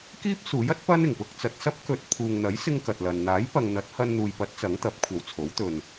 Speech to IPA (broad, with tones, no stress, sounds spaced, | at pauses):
k iː˥ p̚ s uː˨˥ j ɐ˥ t̚ p ɐ˥ n ɪ˨˩ ŋ p ʊ˧ k̚ t͡s ɐ˨ t̚ s ɐ˥ p̚ k ɵ˨˥ t̚ pʰ uː˨ ŋ n̪ ɐ˨˥ j s ɪ˧ ŋ k ɐ˨ t̚ l ɐ˨ n n̪ aː˨˥ j p ɐ˨ ŋ n̪ ɐ˨˥ t̚ h ɐ˧ n n̪ uː˨ j p ɐ˨˥ t̚ t͡s ɐ˨˥ ŋ t̪ ɐ˨˥ p̚ kʷʰ ɐ˨ w t͡sʰ o˨˥ w t̪ ɵ˨ n